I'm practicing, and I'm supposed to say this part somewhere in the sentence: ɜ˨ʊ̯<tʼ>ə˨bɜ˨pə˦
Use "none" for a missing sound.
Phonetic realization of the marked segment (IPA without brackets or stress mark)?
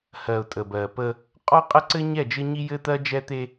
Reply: tʼ